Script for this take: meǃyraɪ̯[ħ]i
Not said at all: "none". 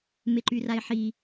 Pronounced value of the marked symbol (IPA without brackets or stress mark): ħ